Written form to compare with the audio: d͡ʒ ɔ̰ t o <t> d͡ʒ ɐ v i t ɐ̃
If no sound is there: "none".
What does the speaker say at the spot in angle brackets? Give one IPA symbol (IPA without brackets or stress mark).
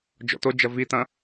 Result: none